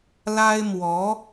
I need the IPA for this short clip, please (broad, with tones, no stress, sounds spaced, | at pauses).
l a˥ ɪ̯ m w ɔ˧˥